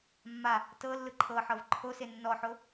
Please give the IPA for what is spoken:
mː a | t ɤ lː ɯ ǃʰ ɤ ħ ɤ v ǃʰ o s e nː ɔ ħ o

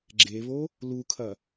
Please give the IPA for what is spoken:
ɡ͡ǁ e β o | l u kʰ ɐ

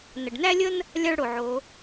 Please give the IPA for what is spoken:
n ə˩ ɖ n æ˥ lʲ ə˥ n | lʲ a˥ ɭ ɽ o˩ ʕ o˩˧

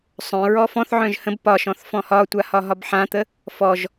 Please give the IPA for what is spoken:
sˤ œ̃ ɹ ɔ f ɔ̃ θ ʕ œ̃ ʒ h ə̃ b p ɒ ʃ ɔ̃ θ f ɔ̃ h ɒ tʷ a h ɒ ɦ ɒ b ħ ã t̪ ə | f ɔ ʒ

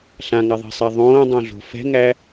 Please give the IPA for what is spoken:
ɬ ã ŋ a ðˤ ɛ̤ sˤ æ ðˤ õː dˤ õ ɮ o̤ f ɛ̤ ŋ æ

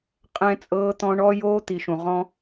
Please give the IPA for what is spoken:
qʼ ɛ̃˧ t͡sʼ ɤː˧ t̪ ɔ̃˧ ɳ ɔ˧ j oː˧ t̪ i˨ ʃ ũ˨ ʁ ɔ̃˧

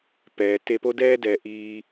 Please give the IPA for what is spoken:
p ɛː˩ t e˧ p o˥ d ɛː˥ d ɛː˩ ʔ iː˧

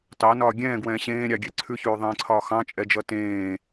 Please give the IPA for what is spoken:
t ɑ n ɒː ɡʲ ɛ̃ː ɡ w ɛ̃ː ɕ ẽː ɾʲ ɑ ɡʲ ɛ ǀʰ ʉ ç ʉː ðˤ ẽː ǀʰ ɒː x ɑ̃ t͡ʃʼ ɛ d͡ʒ ʌ t ẽː

